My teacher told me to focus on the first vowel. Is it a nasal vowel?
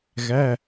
no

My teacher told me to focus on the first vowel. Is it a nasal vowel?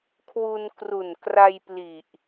no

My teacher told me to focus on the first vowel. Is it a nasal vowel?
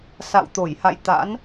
no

